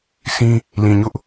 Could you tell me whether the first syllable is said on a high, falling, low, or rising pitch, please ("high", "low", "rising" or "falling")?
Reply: high